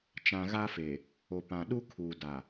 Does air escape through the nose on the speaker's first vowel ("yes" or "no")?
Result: yes